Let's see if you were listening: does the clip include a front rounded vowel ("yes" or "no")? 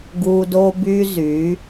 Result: yes